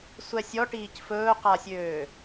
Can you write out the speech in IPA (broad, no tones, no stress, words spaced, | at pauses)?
sʷɛsʲɔʈiːc fɵːqasʲøː